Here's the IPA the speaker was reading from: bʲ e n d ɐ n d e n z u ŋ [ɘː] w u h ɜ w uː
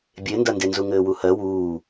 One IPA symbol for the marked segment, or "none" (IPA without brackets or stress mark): ɘː